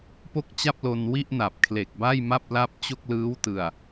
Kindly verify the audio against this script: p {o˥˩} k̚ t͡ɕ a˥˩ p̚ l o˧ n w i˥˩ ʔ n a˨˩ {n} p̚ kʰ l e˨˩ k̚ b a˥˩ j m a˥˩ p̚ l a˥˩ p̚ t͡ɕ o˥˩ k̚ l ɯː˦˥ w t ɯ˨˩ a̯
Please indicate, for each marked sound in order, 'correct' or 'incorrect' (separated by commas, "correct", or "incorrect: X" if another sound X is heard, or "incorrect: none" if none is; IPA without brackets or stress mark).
correct, incorrect: none